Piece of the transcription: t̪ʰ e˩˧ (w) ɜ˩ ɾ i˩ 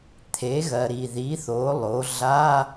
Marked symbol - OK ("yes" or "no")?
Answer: no